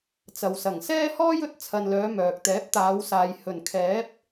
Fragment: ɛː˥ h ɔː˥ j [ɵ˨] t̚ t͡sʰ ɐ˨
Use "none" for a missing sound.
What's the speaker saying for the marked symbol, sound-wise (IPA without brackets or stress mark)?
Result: ɵ˥